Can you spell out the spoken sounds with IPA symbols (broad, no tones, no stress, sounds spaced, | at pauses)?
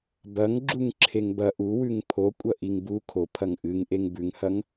b ɐ ŋ ɡ͡ǁ u ŋ ǁʰ e ŋ b ɐ ʔ u w ʉ ŋ pʰ o kʷʼ ɐ ʔ i ŋ b u kʰ o pʰ ɐ ŋ ʔ ɨ ŋ ʔ e ŋ b ʉ ŋ h ɐ ŋ